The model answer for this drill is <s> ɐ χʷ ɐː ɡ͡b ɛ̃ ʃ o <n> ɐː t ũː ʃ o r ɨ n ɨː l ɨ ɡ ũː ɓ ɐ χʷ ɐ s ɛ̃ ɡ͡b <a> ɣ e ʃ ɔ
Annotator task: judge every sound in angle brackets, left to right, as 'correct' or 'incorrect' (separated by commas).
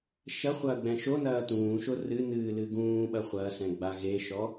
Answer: incorrect, correct, correct